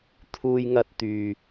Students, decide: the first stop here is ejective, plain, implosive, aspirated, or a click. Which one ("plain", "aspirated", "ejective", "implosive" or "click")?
aspirated